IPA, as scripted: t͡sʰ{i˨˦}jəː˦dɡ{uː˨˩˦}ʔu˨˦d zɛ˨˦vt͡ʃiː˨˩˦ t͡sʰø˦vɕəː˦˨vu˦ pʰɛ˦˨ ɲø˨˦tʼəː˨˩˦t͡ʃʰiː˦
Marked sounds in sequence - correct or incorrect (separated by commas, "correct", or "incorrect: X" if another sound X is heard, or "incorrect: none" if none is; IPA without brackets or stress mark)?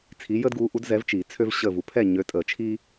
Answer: correct, incorrect: uː˨˦